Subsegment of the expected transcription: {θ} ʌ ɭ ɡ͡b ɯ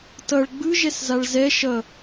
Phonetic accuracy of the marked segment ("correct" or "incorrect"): incorrect